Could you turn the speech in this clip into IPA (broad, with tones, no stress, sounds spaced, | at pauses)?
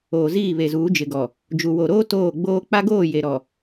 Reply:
oː˨ z iː˦˨ β e˨ z uː˨˦ d͡ʒ ɪ˨ ɡ ɔ˨ | d͡ʒ u˨ w o˨ ɾ oː˦ t oː˦˨ ɡ͡b oː˦ k͡p a˦ ɡ oː˦˨ j e˨ ɾ ɔ˨